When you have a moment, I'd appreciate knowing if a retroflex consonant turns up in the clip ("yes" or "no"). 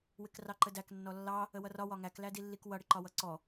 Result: yes